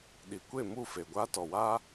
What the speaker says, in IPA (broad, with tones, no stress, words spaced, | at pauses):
ɗi˨kʷe˦˨mu˦˨fe˨ ɡʷaː˦tɔ˨waː˦